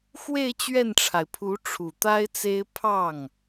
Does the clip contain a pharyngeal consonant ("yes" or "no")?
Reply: no